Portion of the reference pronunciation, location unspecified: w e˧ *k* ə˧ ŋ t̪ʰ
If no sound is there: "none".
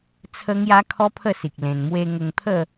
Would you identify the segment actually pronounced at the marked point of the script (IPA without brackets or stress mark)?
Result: ŋ